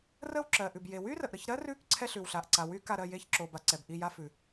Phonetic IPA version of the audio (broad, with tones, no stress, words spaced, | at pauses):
rə˦˨wǁɜ˩ʔʉ˩b je˩wy˥rə˩ʔɾə˦˨ç ɾɜ˥rʉ˦˨k ǀʰɛ˥ɬʉ˩wɬa˩ʔ ǀa˩wy˥ ka˦˨ɾɜ˦˨ je˦˨çǁo˩ba˩ ǀɛ˩bʔi˦˨ja˥fʉ˩